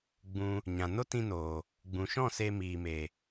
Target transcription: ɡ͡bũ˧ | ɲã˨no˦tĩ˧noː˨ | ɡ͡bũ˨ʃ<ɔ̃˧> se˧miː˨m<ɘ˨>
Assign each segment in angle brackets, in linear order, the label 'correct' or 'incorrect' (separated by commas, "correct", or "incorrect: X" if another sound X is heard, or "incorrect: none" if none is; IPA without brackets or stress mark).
incorrect: ɔ̃˦˨, incorrect: e˨